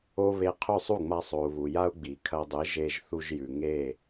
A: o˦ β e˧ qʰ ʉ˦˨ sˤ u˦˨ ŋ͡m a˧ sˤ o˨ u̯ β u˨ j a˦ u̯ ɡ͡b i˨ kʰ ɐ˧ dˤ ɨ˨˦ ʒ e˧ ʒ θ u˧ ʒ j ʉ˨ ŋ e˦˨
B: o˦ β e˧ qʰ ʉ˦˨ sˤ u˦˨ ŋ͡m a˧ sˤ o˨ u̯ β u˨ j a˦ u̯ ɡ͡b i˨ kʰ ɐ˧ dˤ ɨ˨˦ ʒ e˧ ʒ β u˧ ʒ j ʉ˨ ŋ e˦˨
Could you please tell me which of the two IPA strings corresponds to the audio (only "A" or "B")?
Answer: A